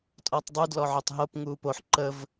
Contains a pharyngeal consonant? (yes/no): yes